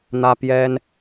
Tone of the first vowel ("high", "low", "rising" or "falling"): high